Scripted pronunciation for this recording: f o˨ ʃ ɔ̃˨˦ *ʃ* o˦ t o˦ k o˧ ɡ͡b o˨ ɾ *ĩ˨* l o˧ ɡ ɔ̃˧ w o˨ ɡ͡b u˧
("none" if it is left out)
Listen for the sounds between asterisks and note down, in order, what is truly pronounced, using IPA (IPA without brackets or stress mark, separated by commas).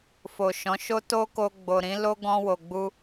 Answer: ʃ, ĩ˨˦